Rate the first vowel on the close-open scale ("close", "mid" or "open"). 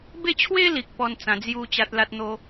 mid